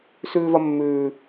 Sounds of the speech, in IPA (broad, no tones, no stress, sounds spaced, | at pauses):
s ʉː v ɐ mː ʉː